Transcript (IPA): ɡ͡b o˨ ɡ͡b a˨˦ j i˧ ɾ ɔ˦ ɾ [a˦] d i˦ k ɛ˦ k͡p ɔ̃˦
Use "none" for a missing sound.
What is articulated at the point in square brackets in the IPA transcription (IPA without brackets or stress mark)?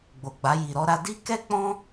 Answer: a˦